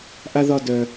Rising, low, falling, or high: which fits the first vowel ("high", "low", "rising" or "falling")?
high